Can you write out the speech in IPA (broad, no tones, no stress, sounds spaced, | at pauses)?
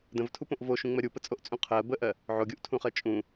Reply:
d ə̃ v tʰ u p õ ʔ v o ʃ ũ ŋ͡m ɜ ɾʲ u p ə t͡sʼ o ʔ t͡sʼ ũ qʰ ɜ b ə ʔ ɜ | ʕ o ɡʲ u ʔ tʰ ũ χ ɜ t͡ʃʼ ũ